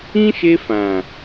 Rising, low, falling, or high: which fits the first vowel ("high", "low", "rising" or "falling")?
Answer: high